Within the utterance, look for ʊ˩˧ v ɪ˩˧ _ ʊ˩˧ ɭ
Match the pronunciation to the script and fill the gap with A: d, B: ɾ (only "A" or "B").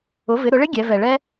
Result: B